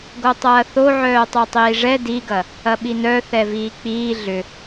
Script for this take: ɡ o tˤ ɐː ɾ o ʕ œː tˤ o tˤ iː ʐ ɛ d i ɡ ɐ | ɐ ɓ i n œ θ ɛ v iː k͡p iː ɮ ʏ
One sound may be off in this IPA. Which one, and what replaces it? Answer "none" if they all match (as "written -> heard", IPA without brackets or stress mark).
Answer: ɾ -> θ